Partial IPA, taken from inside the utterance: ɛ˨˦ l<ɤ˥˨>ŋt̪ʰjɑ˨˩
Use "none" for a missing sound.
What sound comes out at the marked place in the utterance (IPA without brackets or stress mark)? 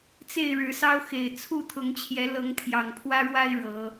ɤ˨˦